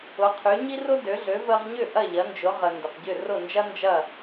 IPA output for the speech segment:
ʊ˩˥ qʰ y˩˥ ɲ i˥ r ʊ˥ d ø˩˥ ɮ ø˩˥ v ə˧ ʁ ɲ ʏ˥˩ ʔ ɐ˥˩ ʎ ɐ˩˥ n d͡ʒ ʊ˩˥ ʁ ə˩ n d ʏ˩ q ɟ ʏ˥˩ r ʊ˥˩ n d͡ʒ ɐ˥ n d͡ʒ ɐ˥˩

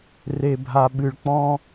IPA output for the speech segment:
r e˨ bʱ a˨ ɓ ɨ˨ ɭ k͡p ɔ̃˦

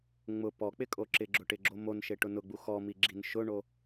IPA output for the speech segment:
ŋ͡m ʊ p ɔ k͡p ɪ kʼ o ǁ ɪ ɡ͡ǁ ʊ ʈ ɪ ɡ͡ǁ o m o n ʃ e ʈ ʊ n ʊ ɡ͡b u x ɔ m i ɡ͡ǁ i n ʃ ʊ ɳ o

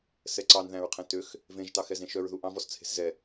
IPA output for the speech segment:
s ɛ ǀ ɑ n ð æ̃ ɹ qʰ ɛ̃ t ø x | v ẽ ʒ t ɑ x ɛ z ẽ ʃ œ ɹ ð u ʔ ɑ̃ v ɔ s t͡sʰ e̤ s z ɛ

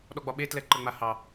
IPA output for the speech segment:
ɗ ɔ ɡ͡b ɒ ɓ e t l ɛ ǃ ə ŋ͡m a h ɑ

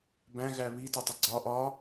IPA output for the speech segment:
b æ̃ ɣ æ β i t ɔ tˤ ə ɡ͡ǀ ɒ ʔ ɒ

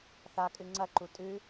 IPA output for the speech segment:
θ a kʼ ɨ ŋ͡ǀ ɐ ǃ u tʼ ʉ

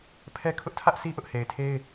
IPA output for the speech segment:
pʰ ɛ˦ kʰ ʊ˦ ʔ tʰ ä˦ ʔ sʰ i˦ ʔ ʊ˦ ʔ h e˨ ɪ̯ tʰ e˦ ɪ̯

